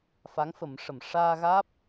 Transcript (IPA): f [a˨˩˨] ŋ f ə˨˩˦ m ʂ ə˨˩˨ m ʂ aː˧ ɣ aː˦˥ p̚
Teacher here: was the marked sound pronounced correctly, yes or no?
no